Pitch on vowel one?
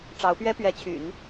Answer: rising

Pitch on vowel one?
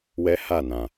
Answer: high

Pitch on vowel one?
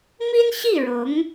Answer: high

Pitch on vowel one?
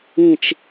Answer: falling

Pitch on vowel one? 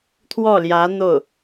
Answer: falling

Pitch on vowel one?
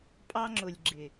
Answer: high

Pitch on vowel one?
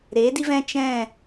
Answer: rising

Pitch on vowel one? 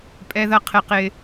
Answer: high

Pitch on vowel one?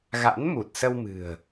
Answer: rising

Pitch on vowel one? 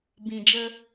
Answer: low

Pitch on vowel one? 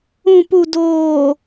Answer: low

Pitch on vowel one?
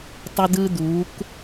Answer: high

